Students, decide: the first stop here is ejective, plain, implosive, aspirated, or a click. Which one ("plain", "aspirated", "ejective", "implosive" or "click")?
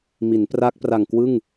plain